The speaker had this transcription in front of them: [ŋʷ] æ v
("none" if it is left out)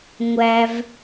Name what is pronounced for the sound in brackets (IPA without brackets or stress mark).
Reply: ŋʷ